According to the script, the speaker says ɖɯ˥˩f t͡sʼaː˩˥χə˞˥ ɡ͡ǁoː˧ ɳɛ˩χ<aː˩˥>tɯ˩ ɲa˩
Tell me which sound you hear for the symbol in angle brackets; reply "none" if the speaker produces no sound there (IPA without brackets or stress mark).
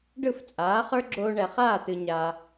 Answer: aː˥˩